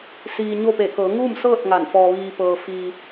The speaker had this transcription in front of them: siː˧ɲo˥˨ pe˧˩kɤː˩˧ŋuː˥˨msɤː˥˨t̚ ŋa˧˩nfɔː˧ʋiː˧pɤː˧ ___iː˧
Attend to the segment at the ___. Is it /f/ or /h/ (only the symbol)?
f